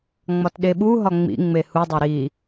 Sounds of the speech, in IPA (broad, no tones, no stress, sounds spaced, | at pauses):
ŋ͡m ɒ t ɗ e ɓ u ɦ ɒ ŋ͡m ḭ ŋ͡m e h u dˤ e ɾ i